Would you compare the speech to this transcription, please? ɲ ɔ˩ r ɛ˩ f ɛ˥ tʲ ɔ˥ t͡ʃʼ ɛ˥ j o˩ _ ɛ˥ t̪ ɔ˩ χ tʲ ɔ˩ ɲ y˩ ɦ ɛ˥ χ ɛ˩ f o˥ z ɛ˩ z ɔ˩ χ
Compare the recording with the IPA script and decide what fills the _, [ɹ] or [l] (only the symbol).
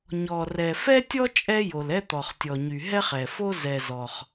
l